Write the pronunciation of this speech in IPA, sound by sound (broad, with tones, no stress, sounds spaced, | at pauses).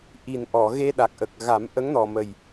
ʔ i˨˩ n ʔ ɔ˨˩˨ ɣ e˧ ɗ a˨˩ k̚ ʔ ə˨˩ k̚ ɣ a˨˩˦ m ʔ ə˧˥ ŋ n ɔ˨˩ m ə˨˩ j